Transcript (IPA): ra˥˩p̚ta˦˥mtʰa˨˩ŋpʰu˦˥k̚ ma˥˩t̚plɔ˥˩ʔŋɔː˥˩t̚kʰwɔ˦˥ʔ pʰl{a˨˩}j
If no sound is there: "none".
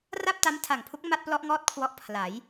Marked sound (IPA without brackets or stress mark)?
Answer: a˩˦